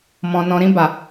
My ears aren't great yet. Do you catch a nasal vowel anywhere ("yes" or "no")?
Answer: yes